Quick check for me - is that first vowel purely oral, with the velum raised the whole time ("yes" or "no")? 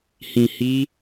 no